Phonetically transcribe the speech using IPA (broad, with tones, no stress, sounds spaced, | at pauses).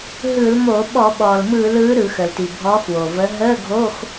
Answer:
ɦ ɯ˧˩˧ l m o˧˩˧ ɓ ɔ˧˩˧ ɓ ɔː˩ l m ɯː˧˩˧ l ɯː˨˥ ɾ ɯ˧˩˧ x ə˩ l t i˩ bʱ ɔː˨˥ x w o˩ v ə˨˥ ɦ əː˧˥˧ ɡʱ o˧˥˧ x